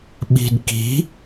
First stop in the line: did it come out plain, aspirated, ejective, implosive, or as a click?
implosive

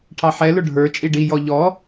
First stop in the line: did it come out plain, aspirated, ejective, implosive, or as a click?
aspirated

